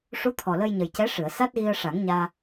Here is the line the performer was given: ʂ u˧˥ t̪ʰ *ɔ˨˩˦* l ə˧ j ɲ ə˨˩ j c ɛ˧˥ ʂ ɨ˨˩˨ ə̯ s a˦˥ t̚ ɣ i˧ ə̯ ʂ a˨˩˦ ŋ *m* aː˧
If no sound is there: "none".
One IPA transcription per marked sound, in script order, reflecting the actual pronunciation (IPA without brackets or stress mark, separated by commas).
ɔ˨˩, ɲ